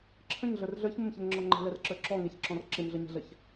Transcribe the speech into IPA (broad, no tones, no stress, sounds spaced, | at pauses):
ǁʰ ə̃ ɲ ɮ ə˞ r ɮ ə˞ ç m ə m ç ɛ ŋ ŋ͡ǁ ɔ ŋ͡ǃ ɛ̤ l ɛ r ǁ ə˞ ǁ ɔ ŋ ɛ ç ǁ ɔ̃ r ǁ ɪ m ɮ ə ɲ ɛ̤ ɮ ə ç